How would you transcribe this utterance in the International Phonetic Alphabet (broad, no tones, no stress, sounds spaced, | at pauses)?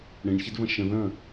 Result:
ɽ ẽ ɳ ç ɛ d v ɐ̃ ʃ ə̃ ð ɐ̃